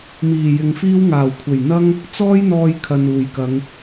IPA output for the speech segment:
m iː˨˩ j ɪ˨ ŋ f iː˥ w ŋ aː˨˩ w kʷʰ e˨˩ j n̪ ɐ˥ ŋ | t͡s ɔː˥ j n̪ ɔː˧ j kʰ ɐ˨ n uː˨˩ j k ɐ˨˧ ŋ

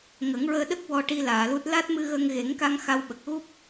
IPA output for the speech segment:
ŋ ə˨˩˦ ŋ ɹ əː˧ ɗ ə˦˥ k̚ w ɔ˧ ʈ i˧ l aː˨˩˨ l u˦˥ t̚ l a˦˥ t̚ m ɨ˧ ɣ ə˧ ŋ ɣ e˨˩˦ ŋ k a˧ ŋ x a˧ w ɓ ə˨˩ k̚ ɣ u˦˥ p̚

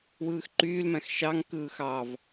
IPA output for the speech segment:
w ɯː x ǃ yː l m æ̃ x ʃ ɑ ŋ k ɯː x ɑ v

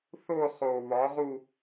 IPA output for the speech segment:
θ o˥˧ χ o˨˩ β ɒ˨˥ ʁ u˥˧

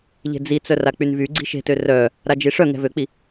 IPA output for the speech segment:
ʎ e̤ d͡z i t͡s œ r a k͡p y n v y ɡ͡ǀ i̤ ʃ e̤ t ø r œ | ɾ a d͡ʒ i ʂ œ ŋ ɛ̤ v ø k͡p i

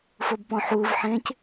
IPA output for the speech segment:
f o b p ɔ̃ ħ uː v ħ ẽː c

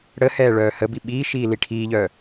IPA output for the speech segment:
ɽ ə h ɛː ɭ œː h ə b i ɓ iː ʃ iː l i ʈʰ iː ʎ œ

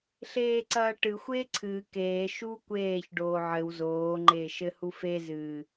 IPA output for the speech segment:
ɬ eː ǀ ɐː ʈ ɨ xʷ eː ǀʰ ɨː k eː ʃ u kʷ eː ç ɖ oː ʕ ɘ w z oː ŋ͡ǃ eː ʃ ɘ h u f e z ɨː

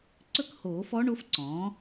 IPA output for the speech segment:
ǀ ɵ˥˨ k h oː˨˩˦ f ɔ˧˥ ɳ o˩˥ f ǀ ɔ̃ː˩˥

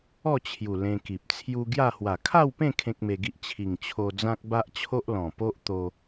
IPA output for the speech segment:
ɔ˥˧ t͡ɕʰ j u˨˩ l ẽ˧ k i˨ p̚ t͡sʰ j u˧ ɡ j a˥˧ h w a˨˩ kʰ a˥˧ w p ẽ˥˧ kʰ ẽ˦ k̚ m e˧ ɡ i˦ ʔ t͡ɕʰ i˨˩ ŋ t͡ɕʰ o˧ d͡z ã˦ k̚ b a˦ ʔ t͡ɕʰ o˦ ʔ l ɔ̃˨˩ p o˦ ʔ t̪ o˧

